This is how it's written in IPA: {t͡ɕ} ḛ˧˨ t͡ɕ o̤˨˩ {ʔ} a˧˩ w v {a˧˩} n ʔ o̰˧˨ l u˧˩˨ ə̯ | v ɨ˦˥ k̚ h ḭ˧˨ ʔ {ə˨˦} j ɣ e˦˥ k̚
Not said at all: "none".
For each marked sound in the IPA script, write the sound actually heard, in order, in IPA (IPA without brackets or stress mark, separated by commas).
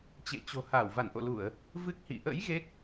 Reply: t͡ɕ, h, a˧˩, ə̰˧˥